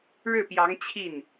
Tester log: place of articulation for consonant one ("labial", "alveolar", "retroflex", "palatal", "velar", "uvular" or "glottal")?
retroflex